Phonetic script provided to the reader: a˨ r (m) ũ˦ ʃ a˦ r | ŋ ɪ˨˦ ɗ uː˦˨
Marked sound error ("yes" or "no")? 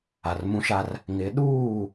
no